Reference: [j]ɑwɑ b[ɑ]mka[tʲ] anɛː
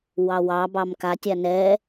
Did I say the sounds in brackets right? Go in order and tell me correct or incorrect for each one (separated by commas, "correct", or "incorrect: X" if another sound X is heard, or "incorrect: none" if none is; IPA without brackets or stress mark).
incorrect: w, correct, correct